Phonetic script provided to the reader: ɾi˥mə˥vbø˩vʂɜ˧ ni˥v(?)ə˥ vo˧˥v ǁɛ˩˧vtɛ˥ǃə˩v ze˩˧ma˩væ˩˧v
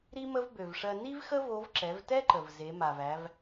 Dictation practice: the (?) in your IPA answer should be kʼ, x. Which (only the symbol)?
x